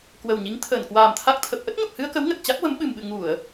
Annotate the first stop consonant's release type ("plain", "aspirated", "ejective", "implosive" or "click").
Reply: plain